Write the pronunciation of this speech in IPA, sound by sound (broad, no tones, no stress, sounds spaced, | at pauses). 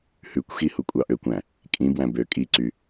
h ʉ kʷ x i h u kʷʼ ɑ ʔ ø kʷ æ̃ | kʼ ĩ b w æ̃ b ø kʼ i ǀ y